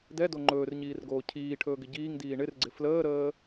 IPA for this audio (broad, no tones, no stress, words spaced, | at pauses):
dɛdo ŋ͡ǃɵːrɲiːrɡoː cʰiːʈʰɵːɡɪ ɟiːŋdiː ɳɪrɡ͡ǀɪ fləːɾəː